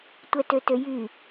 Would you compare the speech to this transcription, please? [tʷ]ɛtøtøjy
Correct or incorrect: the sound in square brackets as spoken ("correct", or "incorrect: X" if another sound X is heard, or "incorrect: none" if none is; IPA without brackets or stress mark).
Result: correct